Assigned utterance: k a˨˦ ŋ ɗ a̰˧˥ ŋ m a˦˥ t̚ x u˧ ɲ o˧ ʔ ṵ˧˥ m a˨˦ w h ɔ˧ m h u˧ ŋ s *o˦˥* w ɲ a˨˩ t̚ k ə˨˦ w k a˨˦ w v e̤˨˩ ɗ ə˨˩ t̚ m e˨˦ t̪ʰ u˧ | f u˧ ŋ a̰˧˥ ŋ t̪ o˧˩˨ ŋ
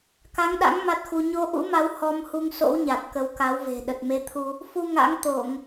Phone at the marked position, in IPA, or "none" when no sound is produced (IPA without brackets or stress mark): o̰˧˥